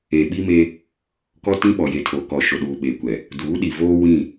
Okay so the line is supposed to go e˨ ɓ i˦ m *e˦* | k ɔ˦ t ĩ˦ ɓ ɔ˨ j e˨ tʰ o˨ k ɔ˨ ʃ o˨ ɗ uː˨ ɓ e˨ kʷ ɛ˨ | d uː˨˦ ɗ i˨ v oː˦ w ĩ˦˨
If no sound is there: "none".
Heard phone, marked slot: e˦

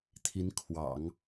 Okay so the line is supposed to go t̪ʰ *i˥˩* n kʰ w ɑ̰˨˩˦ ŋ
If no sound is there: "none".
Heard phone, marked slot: i˧˥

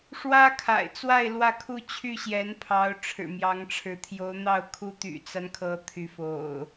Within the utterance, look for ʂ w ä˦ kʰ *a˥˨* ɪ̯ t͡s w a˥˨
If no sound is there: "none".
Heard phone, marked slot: a̰˨˩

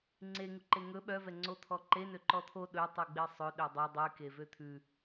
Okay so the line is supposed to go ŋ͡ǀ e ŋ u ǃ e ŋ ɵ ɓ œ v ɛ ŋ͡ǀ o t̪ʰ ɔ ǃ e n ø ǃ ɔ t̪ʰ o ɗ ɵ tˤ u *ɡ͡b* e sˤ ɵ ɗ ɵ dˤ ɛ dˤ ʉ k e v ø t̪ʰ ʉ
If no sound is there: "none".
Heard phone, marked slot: ɡ͡b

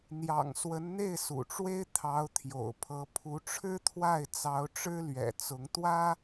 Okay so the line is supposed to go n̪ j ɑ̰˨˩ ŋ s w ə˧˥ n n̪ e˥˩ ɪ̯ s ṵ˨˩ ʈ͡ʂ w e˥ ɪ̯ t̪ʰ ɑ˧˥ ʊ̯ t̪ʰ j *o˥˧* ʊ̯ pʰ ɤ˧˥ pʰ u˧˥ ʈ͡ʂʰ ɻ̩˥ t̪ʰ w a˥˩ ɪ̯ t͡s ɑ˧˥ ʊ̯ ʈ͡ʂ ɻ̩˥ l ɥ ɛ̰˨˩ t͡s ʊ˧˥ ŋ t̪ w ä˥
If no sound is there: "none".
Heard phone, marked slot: o̰˨˩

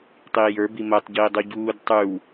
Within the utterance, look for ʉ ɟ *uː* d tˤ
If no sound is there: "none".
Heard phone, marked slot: uː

